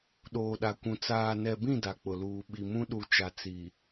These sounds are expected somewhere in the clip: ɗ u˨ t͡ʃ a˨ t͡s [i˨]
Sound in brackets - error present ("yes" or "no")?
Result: no